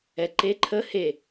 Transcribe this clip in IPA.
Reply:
ɛ ǃ e ǃʰ ə h e

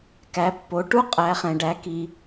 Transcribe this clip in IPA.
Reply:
k æ˩˥ pː o˩˥ ʈ u˥ qʼ æ˩˥ χ ɛ̃˩ ɖ æ˩˥ k i˩

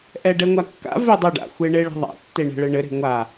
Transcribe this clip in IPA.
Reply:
ʔ ɛ ɖ ɛ ŋʷ a kː a̰ v e dˤ ɘ ɖ a̰ xʷ e ɳ e ɭ ɛ̤ ðˤ a̰ tː e ɳ ɛ̤ ɭ ɘ ɳ ɘ ɾ e̤ ŋʷ a

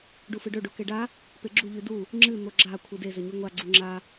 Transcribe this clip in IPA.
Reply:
ɖ u f ɨ ɖ ɵ ɖ o k e ɖ a | p e ɡ͡ǁ u ʎ ʉ d u | ŋ͡ǁ ɨ n̪ o ɡ͡ǁ a kʷʰ ɨ d e z ɵ ɲ ʉ ŋʷ a ɡ͡ǀ u ŋ͡ǁ a

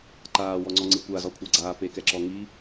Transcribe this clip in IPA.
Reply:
ǃ aː w ɔ ŋ͡ǀ ɔ ŋ͡ǀ ɨ kʷ a z ɔ kʷʰ a ɡ͡ǀ aː p e k ɛ ǁ ɔ ŋ i

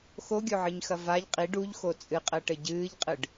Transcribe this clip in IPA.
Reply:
x o ɡʲ o ʕ ɨ ɲ x ɐ v a ʎ qʼ i ɖ u ʎ x o t͡sʼ ɨ qʼ ɘː ʈ ɘ ɟ ɨː ʎ qʼ ɨ ɖ

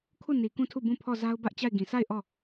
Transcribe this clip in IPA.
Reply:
kʰ u˦˨ n i˨ k ũ˦˨ tʰ u˦˨ b ũ˦˨ pʰ ɔ˦˨ z a˦ ʊ̯ b ä˦ ʔ t͡ɕ a˦˨ ɪ̯ ɡ ĩ˨ s a˦˨ ɪ̯ ʔ ɔ˦˨

